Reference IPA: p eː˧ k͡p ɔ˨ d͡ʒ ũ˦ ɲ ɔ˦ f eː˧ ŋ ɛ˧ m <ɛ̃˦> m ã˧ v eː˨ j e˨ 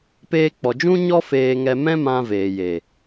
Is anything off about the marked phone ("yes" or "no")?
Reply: no